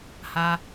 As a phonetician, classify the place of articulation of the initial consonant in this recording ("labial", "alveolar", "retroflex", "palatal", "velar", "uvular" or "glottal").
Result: glottal